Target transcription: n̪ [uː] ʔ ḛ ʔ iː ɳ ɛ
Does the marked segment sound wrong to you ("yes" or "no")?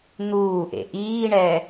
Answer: no